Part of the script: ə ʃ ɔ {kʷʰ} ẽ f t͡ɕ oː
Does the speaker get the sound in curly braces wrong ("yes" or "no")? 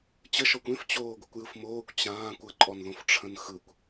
yes